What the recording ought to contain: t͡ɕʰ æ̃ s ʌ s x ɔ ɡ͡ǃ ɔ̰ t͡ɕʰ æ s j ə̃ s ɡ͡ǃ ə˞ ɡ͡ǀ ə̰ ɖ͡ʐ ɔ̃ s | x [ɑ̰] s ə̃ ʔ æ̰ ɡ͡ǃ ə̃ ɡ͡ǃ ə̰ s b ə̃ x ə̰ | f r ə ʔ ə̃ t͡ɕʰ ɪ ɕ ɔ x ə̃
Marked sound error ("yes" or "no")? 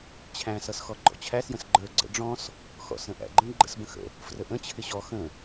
yes